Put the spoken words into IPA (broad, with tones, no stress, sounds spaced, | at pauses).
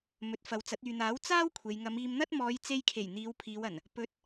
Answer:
m ɵ˨˥ t̚ f ɐ˨˧ w t͡s ɐ˨˥ t̚ yː˨ n̪ aː˨˥ w t͡s aː˥ w kʷʰ e˨ j ŋ ɐ˨˧ m iː˧ m n̪ ɐ˥ t̚ m ɔː˨˧ j t͡s e˧ j kʰ e˨˩ j n̪ iː˨˧ w pʰ iː˨˧ w ɐ˨˩ n | p ɵ˧ t̚